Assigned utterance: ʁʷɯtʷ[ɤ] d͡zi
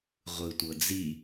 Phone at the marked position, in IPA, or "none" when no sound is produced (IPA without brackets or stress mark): ɤ